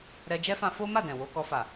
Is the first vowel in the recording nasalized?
no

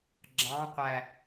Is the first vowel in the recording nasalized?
yes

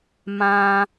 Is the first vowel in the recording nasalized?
yes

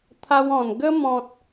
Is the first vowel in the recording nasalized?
no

